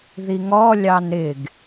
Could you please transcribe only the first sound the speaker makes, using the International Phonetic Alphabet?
ð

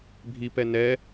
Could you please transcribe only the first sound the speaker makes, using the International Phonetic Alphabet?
bʱ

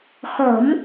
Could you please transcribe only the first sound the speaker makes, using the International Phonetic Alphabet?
x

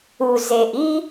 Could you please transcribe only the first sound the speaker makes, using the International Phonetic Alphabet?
u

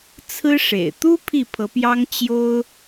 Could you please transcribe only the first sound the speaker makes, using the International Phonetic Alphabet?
t͡sʰ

